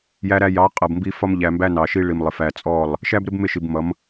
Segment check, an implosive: absent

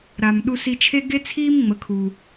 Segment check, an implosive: present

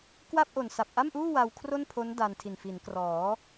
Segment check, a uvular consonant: absent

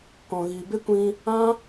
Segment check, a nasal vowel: present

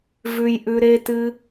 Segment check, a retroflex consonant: absent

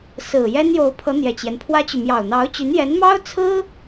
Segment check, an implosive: absent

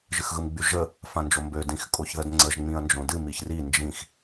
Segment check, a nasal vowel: present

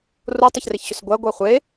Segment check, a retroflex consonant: absent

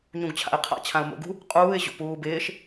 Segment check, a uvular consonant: present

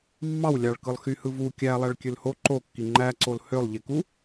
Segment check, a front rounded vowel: present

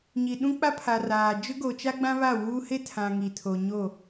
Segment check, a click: absent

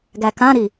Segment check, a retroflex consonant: absent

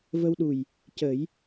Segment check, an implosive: present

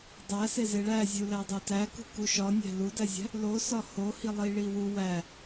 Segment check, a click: absent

